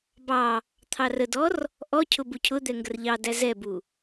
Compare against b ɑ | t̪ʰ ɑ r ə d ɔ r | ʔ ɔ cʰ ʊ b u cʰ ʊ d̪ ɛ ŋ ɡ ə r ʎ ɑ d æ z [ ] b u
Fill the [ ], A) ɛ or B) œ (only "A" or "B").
A